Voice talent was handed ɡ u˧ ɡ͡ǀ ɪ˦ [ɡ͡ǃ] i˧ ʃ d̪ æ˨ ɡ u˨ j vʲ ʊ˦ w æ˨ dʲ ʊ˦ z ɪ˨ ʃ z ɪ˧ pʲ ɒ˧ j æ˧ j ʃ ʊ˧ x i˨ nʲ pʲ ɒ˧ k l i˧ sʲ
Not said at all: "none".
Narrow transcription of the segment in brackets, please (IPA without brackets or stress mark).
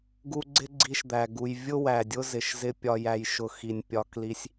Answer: ɡ͡ǀ